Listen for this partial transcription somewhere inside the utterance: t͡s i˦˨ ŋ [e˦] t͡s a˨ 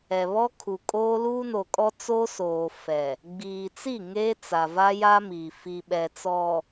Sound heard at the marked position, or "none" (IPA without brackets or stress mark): e˦